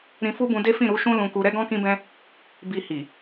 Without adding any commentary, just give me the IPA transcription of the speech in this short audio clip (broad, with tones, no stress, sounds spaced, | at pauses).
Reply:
ɾ ĩ˧ f u˦ b ũ˧ d e˦ f ĩ˦˨ ɾ u˧ ʃ ũ˦ l ũ˧ k u˧ ɾ ɛ˦ ɡ ɔ̃˦ k ĩ˦ b ɛ̃˦ | b i˧ h i˨